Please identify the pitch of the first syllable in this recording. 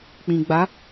low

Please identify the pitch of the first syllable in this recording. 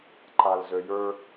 low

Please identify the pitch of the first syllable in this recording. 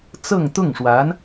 falling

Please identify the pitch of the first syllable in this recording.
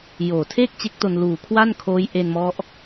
low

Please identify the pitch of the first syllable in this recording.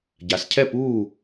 rising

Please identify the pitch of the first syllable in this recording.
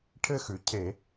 high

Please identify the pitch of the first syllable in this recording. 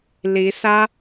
rising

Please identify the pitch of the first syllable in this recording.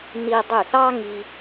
high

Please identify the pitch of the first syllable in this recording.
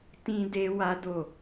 high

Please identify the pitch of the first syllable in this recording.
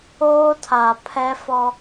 high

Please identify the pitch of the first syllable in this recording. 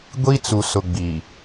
high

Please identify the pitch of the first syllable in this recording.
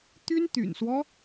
high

